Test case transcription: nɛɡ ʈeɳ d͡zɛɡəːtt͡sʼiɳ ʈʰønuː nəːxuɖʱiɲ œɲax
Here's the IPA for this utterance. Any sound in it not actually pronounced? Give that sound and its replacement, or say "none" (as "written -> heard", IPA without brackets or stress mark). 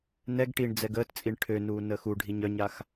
e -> i